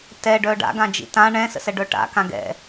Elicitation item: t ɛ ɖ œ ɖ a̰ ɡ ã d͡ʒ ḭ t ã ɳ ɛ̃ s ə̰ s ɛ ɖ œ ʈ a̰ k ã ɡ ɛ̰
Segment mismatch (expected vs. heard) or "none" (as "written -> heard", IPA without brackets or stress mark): none